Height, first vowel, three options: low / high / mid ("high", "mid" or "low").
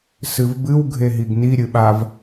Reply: high